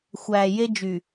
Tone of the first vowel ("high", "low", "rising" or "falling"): low